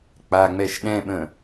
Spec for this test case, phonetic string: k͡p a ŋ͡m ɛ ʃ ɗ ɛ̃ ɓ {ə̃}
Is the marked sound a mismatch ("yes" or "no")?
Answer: no